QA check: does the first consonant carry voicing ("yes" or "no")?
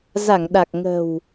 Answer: yes